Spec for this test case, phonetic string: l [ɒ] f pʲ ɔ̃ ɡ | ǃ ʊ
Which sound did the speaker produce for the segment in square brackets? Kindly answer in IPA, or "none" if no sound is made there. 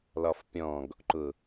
ɒ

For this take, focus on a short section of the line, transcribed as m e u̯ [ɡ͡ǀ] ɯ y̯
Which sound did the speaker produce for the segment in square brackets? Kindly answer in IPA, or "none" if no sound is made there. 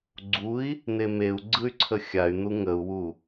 ɡ͡ǀ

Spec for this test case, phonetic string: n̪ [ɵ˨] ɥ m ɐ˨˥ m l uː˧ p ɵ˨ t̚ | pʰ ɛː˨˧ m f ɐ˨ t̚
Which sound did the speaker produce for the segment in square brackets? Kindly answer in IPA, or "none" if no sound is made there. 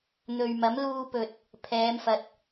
ɵ˨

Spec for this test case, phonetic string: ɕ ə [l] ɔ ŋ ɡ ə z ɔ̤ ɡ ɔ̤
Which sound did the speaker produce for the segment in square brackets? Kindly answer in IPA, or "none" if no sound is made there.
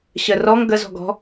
r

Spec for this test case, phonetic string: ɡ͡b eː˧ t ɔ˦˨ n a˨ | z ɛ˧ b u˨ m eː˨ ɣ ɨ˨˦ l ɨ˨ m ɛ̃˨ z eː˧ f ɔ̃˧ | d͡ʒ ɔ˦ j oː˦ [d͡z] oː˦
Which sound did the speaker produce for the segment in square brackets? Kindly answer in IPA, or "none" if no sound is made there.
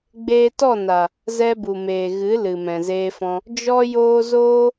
z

